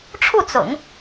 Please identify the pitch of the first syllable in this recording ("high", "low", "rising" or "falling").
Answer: falling